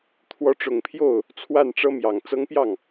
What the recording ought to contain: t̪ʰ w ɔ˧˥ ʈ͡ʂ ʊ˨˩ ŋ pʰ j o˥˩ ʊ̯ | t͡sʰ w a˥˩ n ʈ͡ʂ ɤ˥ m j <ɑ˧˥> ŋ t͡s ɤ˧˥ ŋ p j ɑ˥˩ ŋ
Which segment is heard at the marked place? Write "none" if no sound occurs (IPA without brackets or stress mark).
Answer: ɑ˨˩